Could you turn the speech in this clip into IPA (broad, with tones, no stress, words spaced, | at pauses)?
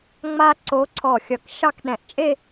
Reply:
ŋ͡ma˥ ǀo˧˥ǀʰɔ˧˩xʲʌ˧˩k ʃɑ˥˧kɗɛ̃˧˩ʔ t͡ʃʼe˥˧